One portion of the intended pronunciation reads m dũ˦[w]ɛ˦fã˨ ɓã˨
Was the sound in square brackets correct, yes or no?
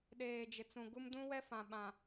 yes